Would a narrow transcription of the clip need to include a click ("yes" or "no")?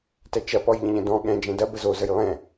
no